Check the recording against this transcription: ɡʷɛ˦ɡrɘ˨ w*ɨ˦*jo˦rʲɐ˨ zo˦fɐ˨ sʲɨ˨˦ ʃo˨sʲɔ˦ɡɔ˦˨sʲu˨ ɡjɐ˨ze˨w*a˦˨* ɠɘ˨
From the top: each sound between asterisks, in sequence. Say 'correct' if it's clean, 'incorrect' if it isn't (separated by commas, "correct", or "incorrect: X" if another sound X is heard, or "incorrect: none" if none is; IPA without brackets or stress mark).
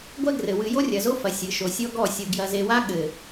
incorrect: ɨ˨, incorrect: a˦